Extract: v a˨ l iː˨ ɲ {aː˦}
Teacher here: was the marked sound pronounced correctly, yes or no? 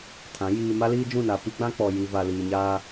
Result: yes